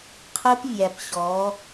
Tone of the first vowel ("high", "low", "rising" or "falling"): high